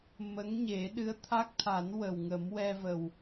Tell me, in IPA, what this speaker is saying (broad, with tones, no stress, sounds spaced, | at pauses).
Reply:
m ə˧˥ ŋ ɲ e˨˩˦ ɗ ɨ˧˥ ə̯ t̪ʰ a˦˥ k̚ t̪ʰ a˨˩˦ n w ə˨˩ w ŋ ə˨˩˦ m w ɛ˧ v ə˨˩ w